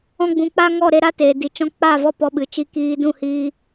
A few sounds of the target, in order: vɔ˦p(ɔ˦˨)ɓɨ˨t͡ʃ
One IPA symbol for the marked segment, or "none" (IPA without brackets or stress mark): ɔ˧